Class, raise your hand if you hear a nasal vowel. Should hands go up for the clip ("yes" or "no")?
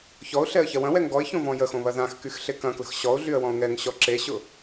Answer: yes